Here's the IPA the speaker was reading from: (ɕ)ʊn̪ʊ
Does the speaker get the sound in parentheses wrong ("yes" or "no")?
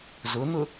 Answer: yes